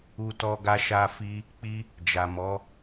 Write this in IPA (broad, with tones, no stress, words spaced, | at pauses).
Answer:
u˦tɔ˦ ɡa˦ʃa˦fi˦ | k͡pi˦ | d͡ʒa˨mɔ˨˦